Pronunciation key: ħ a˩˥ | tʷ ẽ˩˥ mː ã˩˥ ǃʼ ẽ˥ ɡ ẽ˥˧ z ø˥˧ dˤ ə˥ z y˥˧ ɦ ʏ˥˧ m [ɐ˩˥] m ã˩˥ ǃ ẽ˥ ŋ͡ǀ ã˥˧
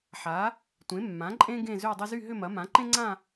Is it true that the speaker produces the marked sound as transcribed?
yes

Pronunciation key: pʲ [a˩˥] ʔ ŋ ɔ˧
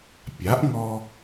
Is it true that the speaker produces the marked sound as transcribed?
yes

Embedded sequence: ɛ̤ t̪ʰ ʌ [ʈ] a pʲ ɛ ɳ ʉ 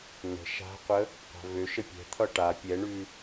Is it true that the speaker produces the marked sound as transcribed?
yes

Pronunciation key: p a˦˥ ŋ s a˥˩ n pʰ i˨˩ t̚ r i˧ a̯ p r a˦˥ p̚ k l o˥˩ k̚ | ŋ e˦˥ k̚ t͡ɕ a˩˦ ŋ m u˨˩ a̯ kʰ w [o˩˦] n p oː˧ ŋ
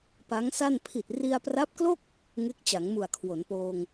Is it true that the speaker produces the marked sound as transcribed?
yes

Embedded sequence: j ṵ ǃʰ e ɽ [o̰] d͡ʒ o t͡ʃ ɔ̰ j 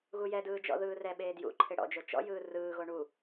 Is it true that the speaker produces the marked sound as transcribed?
no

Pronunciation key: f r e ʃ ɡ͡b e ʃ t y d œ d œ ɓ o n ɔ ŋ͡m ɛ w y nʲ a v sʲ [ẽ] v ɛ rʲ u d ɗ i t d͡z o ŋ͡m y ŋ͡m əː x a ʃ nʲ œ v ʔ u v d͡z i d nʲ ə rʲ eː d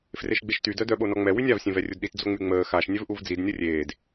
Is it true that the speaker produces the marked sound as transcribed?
yes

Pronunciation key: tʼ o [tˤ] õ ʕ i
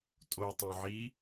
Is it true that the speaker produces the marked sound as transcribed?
yes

